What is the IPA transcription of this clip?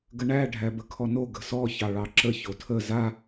ɡ ə ɳ æ ɖʱ æ b ə kʰ ɔ n o ɡ ə̤ s ɔ ç ɑ ɭ ɑ ǁ ə ç o tʰ ə z a

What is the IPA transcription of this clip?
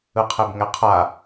ɯ qʰ e b ŋ ɛ qʰ a

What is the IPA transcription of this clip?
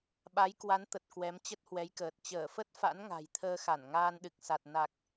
ɓ a˨˦ j k w a˨˦ n t̪ ə˨˩ t̚ k w ɛ˨˦ m t͡ɕ ə˦˥ t̚ h w ɛ˨˦ j k əː˨˩ t̚ t͡ɕ əː˧˩ f ə˦˥ t̚ f a̰˧˥ n ŋ a̤˨˩ j t̪ʰ əː˧ x a˧˩ n ŋ aː˧ n ɗ ɨ˨˩ k̚ s a˨˩ t̚ n a˨˩ k̚

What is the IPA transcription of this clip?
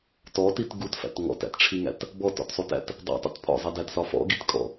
t ɔ t i t ɡ u t f æ̰ t ŋ ɔ̰ t æ̰ t ʈ͡ʂʰ i ŋ æ̰ t | b ɔ t ɔ̰ t sˤ u t æ̰ t | dˤ ḭ tˤ ḭ t pʰ ɔ̰ zˤ i d æ t s ɒ f ɔ̰ ɡ i t kʼ ɔ̰

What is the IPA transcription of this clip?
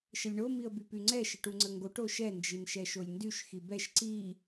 ʃ ə lʲ ɳ o m i ə̯ b y p y ŋ͡ǀ ɛ ʃ ə ʈ u ŋ͡ǀ ə ŋ ɡ o ʈ o ʃ ɛ n d͡ʒ i n ʃ ɛ ʃ o lʲ n d y ʃ x i b ɛ ʃ ǀ i

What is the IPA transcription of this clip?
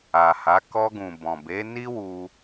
a˨ h a˨˦ k ɔ˧ ɡ ũ˨ b ɔ̃˨ b e˨˦ n i˦ w u˧

